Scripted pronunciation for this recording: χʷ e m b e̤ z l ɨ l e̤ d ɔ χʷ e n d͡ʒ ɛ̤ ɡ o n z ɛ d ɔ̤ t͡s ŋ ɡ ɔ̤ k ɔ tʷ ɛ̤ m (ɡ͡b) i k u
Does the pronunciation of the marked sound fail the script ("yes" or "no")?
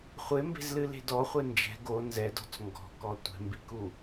yes